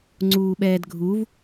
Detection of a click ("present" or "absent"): present